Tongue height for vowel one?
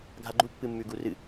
low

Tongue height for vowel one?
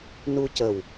high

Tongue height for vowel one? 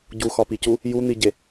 high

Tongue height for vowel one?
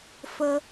mid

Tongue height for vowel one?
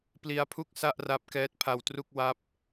high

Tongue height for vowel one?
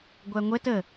low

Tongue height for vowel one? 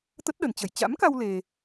mid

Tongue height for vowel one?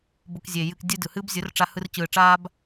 high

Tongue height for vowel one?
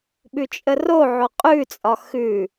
high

